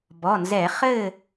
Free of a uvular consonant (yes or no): no